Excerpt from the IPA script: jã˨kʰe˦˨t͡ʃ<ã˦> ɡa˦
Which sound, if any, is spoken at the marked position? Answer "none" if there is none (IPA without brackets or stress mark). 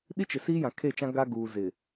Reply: ã˦